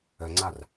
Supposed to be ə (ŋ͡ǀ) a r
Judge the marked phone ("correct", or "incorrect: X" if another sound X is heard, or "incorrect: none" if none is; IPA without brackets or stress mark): correct